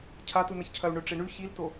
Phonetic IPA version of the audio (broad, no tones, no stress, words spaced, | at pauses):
cʰatunɐçcʰɐu̯ ɳɵʈ͡ʂeɳʉ çilto